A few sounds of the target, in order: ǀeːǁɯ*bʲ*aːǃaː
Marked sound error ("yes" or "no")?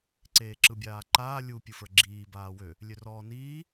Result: no